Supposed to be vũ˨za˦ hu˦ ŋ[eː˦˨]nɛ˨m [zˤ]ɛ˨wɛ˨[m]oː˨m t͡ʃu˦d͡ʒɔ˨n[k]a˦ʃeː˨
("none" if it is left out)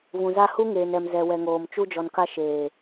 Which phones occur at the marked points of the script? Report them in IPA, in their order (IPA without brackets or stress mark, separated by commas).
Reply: eː˨, z, ŋ, k